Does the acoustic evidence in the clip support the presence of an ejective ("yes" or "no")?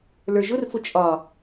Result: yes